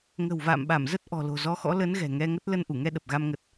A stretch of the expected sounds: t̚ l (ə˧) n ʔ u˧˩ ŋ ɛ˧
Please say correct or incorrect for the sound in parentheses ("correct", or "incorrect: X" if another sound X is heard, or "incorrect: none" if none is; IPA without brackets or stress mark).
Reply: correct